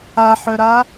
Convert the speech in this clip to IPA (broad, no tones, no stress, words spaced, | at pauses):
aħœɾa